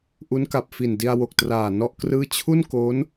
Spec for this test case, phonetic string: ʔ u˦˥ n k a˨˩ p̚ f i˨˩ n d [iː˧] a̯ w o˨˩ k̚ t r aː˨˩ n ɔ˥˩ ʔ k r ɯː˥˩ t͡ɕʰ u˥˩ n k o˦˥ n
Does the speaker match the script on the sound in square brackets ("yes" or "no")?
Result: no